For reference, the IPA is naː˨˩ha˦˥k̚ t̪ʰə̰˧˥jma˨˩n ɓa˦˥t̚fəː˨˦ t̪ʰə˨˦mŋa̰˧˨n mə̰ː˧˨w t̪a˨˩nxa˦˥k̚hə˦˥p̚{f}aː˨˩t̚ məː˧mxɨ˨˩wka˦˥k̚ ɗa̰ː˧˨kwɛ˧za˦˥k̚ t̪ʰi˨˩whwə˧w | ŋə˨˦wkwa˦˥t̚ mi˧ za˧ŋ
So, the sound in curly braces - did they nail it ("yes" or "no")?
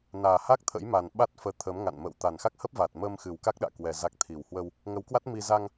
no